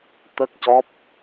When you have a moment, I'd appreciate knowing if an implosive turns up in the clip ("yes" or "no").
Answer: no